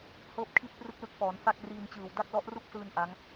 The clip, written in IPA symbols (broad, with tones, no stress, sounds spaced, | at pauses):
h ɤː˥˩ p̚ kʰ i˥˩ t̚ p r ɯ˥˩ k̚ l ɯ˦˥ k̚ f ɔː˩˦ n f a˥˩ k̚ r iː˧ n t͡ɕ ɯː˨˩ w d a˥˩ k̚ l ɔ˦˥ ʔ r u˥˩ k̚ s ɯː˧ n ʔ a˦˥ ŋ